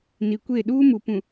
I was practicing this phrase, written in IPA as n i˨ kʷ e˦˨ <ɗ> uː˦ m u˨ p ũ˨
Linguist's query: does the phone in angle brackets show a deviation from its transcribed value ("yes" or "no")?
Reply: no